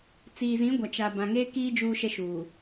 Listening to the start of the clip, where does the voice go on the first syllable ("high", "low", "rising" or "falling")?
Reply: low